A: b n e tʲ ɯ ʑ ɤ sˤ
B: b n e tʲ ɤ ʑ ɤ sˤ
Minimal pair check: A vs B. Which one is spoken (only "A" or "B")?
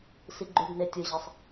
A